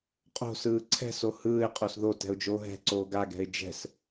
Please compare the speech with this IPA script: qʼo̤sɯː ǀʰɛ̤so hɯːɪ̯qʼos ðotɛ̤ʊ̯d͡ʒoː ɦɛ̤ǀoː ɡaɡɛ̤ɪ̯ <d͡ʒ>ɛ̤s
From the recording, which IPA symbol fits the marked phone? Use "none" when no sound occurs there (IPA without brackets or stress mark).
d͡ʒ